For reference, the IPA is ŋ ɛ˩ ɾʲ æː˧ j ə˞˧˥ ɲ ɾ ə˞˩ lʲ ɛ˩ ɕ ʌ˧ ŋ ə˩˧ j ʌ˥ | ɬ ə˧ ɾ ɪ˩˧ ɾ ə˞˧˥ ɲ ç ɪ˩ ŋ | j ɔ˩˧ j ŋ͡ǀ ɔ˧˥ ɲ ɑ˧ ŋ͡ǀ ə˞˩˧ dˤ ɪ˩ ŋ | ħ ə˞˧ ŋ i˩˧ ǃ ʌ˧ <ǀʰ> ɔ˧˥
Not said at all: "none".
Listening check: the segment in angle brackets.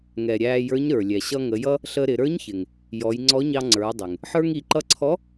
ǀʰ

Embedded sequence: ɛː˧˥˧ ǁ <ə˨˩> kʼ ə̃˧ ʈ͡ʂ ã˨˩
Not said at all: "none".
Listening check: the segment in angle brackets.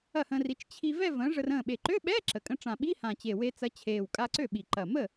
ə˨˩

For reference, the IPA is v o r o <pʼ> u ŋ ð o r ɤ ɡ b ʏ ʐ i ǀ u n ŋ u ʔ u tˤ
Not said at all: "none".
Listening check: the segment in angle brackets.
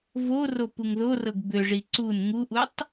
p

